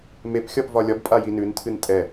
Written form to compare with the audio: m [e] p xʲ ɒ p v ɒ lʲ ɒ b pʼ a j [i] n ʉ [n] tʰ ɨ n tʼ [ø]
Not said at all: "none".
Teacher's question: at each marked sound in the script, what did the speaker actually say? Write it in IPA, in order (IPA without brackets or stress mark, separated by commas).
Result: e, i, n, ɛ